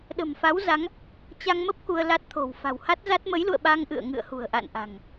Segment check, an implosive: present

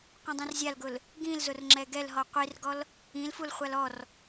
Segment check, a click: present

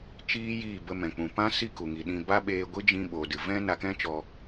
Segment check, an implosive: present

